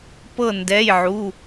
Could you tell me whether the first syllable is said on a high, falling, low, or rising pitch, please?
falling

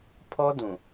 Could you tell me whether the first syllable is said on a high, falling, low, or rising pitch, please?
high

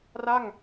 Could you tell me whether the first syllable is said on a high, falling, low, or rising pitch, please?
falling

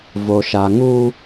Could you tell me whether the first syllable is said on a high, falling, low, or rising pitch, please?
low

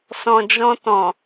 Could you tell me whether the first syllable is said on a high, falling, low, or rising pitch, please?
low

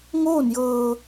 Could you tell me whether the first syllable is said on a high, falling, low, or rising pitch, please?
falling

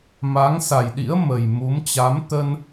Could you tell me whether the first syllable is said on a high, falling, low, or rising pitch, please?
rising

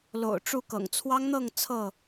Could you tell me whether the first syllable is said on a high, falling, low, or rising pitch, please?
low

